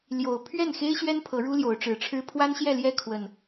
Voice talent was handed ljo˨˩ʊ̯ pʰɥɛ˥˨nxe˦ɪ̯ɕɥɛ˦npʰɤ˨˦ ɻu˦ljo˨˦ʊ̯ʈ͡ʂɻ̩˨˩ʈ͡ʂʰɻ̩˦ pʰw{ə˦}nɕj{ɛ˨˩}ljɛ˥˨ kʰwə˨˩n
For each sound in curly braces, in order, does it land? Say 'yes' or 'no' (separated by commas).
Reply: no, no